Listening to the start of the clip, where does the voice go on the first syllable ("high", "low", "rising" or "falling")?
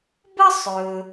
high